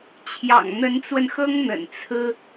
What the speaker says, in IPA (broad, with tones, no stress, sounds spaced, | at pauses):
t͡ɕʰ j ɑ̰˨˩ ŋ n̪ ə˧˥ n t͡s w ə˧ n x ɤ˥ ŋ n̪ ə̰˨˩ n t͡sʰ ɹ̩˥